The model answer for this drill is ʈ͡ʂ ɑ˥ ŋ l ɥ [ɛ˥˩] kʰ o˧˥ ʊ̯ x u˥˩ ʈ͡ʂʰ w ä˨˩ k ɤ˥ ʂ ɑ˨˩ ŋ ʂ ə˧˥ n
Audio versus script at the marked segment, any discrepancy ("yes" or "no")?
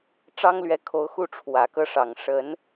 yes